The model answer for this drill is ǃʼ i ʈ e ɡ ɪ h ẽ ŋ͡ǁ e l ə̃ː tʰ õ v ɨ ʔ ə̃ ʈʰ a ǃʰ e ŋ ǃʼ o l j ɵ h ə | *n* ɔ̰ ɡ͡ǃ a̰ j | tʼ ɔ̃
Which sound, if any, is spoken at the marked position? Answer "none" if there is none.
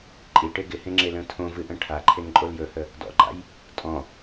d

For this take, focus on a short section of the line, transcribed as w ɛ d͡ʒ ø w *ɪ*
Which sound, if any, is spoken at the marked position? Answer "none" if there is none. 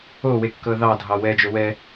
ɛ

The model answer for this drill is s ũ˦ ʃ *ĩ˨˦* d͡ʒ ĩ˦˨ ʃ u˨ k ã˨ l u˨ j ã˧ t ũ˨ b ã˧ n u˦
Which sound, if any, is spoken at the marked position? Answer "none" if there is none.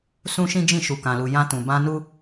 ĩ˦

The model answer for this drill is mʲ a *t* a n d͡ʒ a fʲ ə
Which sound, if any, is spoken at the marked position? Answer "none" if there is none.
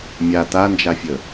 t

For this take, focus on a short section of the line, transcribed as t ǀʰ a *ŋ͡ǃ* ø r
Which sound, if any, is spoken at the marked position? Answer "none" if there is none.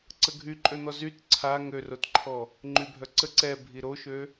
ŋ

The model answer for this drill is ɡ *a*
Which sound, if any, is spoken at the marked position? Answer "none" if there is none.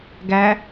æ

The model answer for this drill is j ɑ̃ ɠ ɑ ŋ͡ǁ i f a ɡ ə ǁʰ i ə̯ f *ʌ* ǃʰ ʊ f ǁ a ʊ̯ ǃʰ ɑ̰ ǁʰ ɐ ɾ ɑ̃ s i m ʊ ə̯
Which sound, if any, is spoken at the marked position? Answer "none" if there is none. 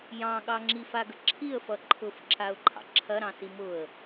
ʌ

